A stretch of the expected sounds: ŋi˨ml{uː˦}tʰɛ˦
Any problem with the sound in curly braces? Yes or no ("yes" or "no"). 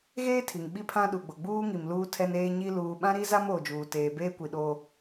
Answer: no